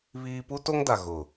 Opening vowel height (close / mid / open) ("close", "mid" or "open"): close